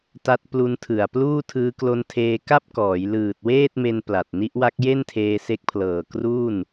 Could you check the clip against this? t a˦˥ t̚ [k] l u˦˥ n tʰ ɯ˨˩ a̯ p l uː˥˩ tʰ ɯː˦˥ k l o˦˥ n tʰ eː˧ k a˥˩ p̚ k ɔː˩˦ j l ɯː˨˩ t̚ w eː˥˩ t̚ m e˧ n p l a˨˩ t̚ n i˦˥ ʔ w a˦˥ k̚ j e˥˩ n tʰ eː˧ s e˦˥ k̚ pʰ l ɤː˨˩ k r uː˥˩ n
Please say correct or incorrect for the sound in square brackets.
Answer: incorrect